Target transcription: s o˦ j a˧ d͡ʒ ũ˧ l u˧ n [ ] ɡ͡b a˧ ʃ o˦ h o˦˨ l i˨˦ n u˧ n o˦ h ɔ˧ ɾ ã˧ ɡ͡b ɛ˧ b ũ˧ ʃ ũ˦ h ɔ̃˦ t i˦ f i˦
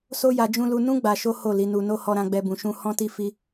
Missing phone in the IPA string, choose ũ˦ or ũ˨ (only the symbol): ũ˦